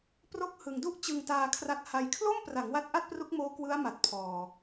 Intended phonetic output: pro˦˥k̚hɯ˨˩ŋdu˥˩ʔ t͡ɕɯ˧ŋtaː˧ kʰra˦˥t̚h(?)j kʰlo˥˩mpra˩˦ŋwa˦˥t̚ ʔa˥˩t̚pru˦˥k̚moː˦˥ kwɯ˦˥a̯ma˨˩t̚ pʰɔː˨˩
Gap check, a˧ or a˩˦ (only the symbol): a˧